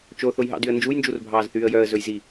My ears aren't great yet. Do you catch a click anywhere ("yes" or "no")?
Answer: no